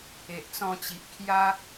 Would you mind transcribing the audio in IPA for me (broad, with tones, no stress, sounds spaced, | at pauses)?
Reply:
e˨ ʔ t͡s ɔ̃˧ t͡ɕ i˨ ʔ kʰ j a˦